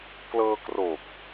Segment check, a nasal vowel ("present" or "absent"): absent